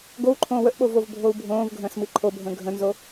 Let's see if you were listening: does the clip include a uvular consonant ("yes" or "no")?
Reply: no